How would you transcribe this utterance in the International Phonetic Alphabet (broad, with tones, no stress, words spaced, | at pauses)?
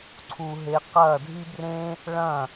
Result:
ǀʰu˧ɦe˧ qɐː˦˨dʱi˦brẽ˦ | ɭɐ̃˦˨